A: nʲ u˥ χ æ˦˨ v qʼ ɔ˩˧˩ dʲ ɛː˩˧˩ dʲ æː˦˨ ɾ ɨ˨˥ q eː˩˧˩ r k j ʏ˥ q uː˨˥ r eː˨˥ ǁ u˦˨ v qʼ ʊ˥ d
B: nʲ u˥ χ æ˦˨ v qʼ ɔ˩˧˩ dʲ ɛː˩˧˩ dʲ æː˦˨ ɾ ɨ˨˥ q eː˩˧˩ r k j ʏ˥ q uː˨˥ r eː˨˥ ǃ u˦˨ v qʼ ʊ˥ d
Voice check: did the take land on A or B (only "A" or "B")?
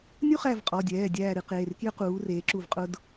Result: A